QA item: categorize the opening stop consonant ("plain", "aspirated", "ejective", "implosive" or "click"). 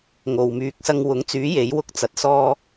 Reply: plain